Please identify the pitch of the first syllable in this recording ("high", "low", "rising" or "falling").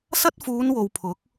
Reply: high